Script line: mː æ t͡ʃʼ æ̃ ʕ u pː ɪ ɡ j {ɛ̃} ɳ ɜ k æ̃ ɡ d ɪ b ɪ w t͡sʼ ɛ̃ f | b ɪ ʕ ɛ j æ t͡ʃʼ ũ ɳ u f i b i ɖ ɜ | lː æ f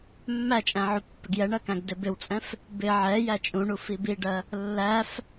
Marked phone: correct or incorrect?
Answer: incorrect